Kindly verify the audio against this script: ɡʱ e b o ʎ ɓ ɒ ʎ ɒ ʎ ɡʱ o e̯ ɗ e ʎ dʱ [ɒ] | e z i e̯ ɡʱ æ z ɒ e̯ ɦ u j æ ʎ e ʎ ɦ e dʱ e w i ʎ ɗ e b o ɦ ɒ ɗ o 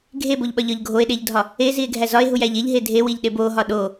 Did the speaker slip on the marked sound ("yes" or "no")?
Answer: no